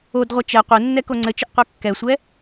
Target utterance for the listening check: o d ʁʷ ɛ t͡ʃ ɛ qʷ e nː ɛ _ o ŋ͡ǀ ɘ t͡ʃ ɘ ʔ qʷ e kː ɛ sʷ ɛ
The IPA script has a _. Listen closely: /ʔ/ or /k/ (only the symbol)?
k